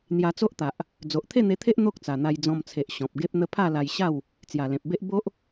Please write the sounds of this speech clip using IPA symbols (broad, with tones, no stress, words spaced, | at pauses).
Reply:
n̪ja˧t͡so˦ʔt̪a˨ʔ | d͡zo˨ʔt̪ʰe˥˧n̪e˧t̪ʰe˦ʔ n̪o˦k̚t͡sa˨˩n̪a˧j d͡zɔ̃˧mt͡sʰe˨ʔ ɕɔ̃˨p̚ ɡe˦p̚n̪ə˦ pʰa˥˧la˧jɕa˥˧w | t͡sja˨˩lẽ˨p̚be˦ʔ bo˦ʔ